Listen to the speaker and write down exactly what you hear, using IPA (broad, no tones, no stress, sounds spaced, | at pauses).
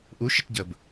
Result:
ʔ u ʃ ə t ɟ ə b